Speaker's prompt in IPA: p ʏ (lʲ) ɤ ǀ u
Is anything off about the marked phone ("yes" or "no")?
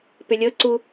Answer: no